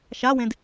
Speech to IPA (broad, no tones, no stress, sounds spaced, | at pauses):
ʃ a w ẽ d